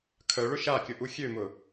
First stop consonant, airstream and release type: aspirated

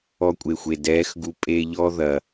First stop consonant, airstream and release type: ejective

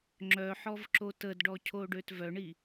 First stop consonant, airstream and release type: click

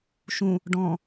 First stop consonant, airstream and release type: plain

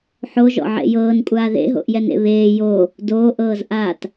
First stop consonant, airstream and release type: ejective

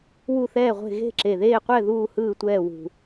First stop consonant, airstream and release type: click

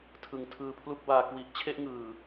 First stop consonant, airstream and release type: aspirated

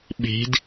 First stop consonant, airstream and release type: implosive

